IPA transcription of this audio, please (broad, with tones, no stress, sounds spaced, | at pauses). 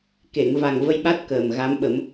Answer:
k e˨˩˨ ŋ v a˨˩ ŋ v ə˧ j ɓ a˦˥ t̚ k əː˨˩ m ɣ a˧˥ m ɓ ə˨˩˦ m